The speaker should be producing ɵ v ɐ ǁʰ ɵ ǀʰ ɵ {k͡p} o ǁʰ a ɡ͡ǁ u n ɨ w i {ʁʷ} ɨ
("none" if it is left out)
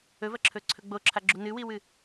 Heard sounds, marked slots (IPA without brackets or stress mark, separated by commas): ɡ͡b, w